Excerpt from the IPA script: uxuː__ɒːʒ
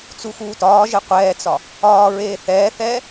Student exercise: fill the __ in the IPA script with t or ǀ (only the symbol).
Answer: t